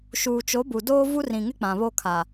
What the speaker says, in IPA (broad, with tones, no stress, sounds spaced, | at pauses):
ʃ uː˨ t͡ʃ o˨˦ b u˨ d oː˦ v u˦ r ĩ˨ ŋ ɪ˦ k͡p ã˨ β o˦ kʰ a˨